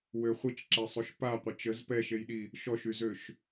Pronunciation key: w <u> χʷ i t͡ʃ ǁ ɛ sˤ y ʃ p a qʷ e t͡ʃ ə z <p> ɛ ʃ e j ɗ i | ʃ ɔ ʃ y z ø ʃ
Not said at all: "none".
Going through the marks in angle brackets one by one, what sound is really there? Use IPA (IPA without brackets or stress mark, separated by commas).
ø, p